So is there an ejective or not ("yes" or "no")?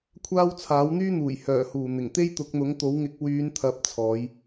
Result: no